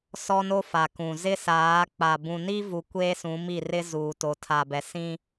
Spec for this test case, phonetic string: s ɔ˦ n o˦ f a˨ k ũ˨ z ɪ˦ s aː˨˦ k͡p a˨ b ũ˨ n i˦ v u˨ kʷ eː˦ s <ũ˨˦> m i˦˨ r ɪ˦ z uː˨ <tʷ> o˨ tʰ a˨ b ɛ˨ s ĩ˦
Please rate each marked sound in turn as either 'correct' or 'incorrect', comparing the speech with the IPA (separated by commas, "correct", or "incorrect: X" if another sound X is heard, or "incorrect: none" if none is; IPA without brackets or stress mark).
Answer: correct, incorrect: t